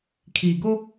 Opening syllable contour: low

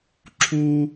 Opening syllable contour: high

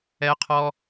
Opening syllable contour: high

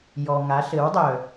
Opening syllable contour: low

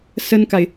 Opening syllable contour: high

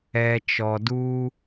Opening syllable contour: low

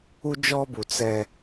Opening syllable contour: high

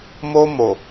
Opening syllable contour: high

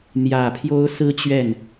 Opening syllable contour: low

